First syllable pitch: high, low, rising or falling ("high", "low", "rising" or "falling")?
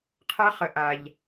high